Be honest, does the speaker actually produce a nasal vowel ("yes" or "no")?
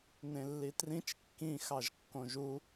yes